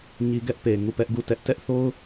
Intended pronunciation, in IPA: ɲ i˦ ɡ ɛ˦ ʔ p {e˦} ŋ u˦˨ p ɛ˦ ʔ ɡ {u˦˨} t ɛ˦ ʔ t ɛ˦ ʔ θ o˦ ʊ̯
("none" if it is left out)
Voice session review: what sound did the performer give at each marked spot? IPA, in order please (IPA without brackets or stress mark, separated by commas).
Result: e˨, u˦˨